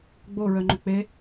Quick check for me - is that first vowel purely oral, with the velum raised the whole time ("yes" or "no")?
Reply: yes